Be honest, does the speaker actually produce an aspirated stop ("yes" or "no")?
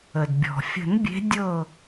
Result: no